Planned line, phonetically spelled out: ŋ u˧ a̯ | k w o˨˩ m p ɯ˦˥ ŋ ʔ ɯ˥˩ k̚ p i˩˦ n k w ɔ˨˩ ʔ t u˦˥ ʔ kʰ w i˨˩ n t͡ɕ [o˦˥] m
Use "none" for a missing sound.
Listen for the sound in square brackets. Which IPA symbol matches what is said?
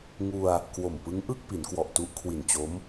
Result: o˦˥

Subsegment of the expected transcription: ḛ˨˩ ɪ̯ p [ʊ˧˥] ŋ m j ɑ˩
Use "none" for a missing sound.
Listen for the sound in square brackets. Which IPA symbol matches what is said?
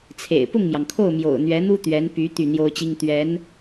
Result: ʊ˥˩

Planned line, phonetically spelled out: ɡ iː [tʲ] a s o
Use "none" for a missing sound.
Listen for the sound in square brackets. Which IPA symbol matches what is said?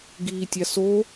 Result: tʲ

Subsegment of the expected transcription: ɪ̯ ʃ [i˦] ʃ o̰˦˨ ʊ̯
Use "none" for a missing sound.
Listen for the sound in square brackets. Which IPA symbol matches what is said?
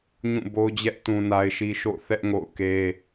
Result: i˦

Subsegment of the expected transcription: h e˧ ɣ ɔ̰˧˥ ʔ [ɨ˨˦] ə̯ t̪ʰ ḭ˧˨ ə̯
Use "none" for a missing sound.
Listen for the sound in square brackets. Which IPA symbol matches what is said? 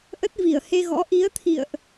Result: i˨˦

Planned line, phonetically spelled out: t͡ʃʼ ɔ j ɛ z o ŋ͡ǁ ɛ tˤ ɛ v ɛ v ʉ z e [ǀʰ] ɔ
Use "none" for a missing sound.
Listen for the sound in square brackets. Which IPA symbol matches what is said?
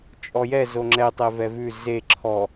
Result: ǁʰ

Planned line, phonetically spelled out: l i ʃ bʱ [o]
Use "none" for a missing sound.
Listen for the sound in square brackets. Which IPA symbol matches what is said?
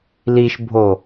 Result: o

